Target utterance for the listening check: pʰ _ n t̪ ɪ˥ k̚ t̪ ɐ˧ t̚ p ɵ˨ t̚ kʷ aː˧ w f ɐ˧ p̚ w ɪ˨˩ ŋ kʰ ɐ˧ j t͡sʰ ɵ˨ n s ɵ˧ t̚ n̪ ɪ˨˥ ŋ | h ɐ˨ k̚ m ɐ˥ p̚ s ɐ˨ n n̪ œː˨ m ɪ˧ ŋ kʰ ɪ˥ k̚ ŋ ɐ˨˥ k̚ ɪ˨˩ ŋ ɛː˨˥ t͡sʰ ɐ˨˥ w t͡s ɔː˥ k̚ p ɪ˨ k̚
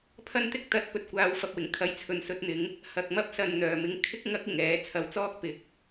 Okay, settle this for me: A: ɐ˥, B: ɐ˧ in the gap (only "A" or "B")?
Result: A